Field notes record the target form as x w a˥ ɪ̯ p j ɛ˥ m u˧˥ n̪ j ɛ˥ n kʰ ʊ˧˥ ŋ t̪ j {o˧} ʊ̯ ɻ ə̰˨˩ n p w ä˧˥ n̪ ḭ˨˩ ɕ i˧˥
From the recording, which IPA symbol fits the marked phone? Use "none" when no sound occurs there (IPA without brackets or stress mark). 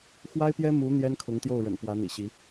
o˥˩